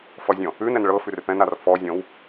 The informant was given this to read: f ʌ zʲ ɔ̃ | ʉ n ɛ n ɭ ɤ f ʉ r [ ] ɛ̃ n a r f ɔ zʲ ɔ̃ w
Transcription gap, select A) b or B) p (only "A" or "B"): B